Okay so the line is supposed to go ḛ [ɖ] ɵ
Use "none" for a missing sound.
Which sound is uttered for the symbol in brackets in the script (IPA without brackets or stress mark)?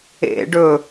ɖ